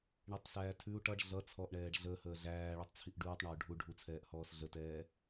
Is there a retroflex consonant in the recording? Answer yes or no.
yes